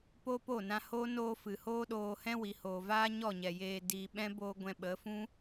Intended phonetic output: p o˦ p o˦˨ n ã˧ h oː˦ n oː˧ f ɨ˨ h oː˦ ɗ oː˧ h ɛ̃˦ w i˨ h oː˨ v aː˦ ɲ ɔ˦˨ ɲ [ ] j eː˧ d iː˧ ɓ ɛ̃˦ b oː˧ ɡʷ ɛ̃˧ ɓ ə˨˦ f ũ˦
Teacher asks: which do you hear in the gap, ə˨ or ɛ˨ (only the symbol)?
ɛ˨